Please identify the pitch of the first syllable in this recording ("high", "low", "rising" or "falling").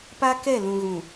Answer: high